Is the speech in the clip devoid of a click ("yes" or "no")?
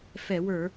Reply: yes